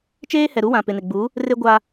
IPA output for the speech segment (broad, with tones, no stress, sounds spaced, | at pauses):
t͡ʃ eː˦ h ɛ˨ ɾ u˦ w ã˨ p ɪ˨ n ɪ˨ ɡ͡b u˨˦ | r e˦ ɡʷ a˦